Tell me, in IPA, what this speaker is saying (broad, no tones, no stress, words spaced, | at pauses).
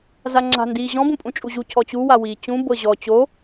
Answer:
zaŋ͡ǁa̤ndiːʑɔ̃ bũpʼũt͡ʃʼuʑu cʰɔt͡ɕu wawiːt͡ɕũ bɤʑɔ t͡ɕo